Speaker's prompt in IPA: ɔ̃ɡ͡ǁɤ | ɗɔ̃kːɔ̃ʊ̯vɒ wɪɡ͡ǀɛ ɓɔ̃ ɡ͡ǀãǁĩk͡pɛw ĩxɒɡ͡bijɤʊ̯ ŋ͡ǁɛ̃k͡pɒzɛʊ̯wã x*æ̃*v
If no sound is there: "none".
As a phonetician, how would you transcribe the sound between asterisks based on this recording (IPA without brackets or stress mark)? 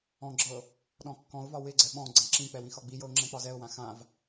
ã